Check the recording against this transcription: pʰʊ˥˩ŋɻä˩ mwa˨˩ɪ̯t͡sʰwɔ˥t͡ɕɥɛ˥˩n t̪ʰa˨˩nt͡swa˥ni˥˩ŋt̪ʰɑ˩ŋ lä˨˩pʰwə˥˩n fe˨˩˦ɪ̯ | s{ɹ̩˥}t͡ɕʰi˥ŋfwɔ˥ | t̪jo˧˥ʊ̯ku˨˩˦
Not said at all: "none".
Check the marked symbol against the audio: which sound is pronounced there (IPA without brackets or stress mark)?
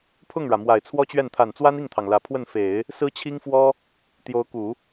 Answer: ɹ̩˥